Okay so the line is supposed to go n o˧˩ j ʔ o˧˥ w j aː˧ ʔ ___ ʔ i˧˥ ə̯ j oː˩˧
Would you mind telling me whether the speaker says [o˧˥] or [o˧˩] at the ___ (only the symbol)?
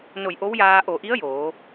o˧˩